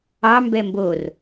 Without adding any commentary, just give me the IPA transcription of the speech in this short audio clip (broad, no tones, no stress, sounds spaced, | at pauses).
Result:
ɑ m b ɛ m b o r